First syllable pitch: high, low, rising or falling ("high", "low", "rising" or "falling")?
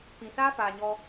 low